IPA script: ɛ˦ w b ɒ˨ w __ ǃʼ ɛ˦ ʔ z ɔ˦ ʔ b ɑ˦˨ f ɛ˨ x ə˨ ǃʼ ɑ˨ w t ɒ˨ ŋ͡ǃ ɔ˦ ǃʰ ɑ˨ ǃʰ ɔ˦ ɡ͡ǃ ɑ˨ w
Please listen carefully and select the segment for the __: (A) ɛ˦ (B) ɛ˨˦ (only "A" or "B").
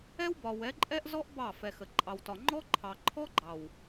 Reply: B